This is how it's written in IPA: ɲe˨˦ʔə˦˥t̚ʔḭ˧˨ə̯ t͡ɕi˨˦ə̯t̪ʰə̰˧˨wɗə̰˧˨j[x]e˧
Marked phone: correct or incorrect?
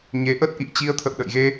incorrect